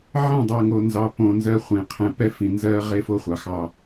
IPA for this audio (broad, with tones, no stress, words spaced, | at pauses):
ʕɛ̃˦˨dˤɜ˨ŋo˨ nzɑ˨põ˨ nzɜ˦χʷẽ˨˦ qʰɛ̃˨pɛ˦fĩ˨ nzɜ˦ʁe˦fo˦χʷɑ˨ xɑ˦